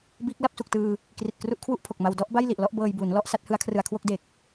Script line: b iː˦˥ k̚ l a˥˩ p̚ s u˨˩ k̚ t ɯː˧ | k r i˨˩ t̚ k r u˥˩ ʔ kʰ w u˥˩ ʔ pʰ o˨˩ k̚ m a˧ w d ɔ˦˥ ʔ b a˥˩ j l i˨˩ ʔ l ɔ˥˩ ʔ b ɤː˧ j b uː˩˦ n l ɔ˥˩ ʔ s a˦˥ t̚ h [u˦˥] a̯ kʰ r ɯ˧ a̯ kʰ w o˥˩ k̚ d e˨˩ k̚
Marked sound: incorrect: ɯ˦˥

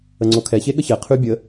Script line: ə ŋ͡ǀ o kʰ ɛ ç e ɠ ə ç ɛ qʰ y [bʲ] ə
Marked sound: correct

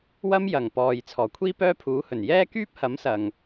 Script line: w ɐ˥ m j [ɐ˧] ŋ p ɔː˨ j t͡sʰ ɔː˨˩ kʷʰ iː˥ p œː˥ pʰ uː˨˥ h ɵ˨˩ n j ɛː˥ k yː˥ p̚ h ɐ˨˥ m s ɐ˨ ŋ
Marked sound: incorrect: ɐ˨˩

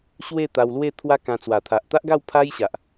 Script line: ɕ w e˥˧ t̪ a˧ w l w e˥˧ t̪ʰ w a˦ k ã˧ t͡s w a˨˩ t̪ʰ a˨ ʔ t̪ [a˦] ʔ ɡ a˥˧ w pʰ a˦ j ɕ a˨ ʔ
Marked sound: correct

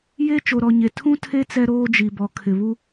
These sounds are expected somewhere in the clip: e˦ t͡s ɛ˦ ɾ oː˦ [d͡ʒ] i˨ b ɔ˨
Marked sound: correct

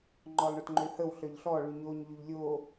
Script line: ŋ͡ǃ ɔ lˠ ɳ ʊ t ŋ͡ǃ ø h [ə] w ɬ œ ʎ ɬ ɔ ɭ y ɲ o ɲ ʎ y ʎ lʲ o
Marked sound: correct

